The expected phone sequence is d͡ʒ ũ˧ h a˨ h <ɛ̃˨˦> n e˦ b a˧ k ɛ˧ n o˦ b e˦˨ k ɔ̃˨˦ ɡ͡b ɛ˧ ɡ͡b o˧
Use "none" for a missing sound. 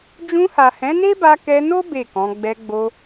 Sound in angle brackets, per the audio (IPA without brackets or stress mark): ɛ̃˨˦